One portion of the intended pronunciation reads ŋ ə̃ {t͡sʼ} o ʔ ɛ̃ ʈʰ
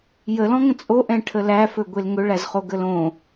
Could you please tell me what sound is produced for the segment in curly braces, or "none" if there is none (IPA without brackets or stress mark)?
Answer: t͡sʼ